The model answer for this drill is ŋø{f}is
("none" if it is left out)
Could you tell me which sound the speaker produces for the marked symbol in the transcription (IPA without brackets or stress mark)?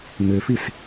f